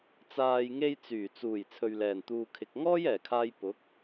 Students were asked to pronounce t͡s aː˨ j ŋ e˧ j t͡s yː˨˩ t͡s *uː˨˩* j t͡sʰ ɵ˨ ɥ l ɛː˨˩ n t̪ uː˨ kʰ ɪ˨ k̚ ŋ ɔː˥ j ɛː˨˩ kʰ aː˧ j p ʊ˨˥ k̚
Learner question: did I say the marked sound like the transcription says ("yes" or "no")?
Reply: yes